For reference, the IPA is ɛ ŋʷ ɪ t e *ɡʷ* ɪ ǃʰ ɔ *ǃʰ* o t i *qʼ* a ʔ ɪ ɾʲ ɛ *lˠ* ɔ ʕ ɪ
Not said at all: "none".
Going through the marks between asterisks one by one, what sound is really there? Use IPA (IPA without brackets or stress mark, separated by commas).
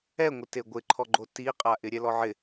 ɡʷ, ɡ͡ǃ, qʼ, l